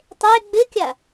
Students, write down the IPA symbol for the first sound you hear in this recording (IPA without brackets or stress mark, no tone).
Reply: tˤ